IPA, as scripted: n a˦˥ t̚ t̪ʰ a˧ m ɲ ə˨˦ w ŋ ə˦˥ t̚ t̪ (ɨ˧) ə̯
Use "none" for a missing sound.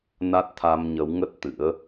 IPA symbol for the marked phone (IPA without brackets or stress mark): ɨ̰˧˥